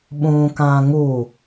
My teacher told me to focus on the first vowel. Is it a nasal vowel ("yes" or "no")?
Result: yes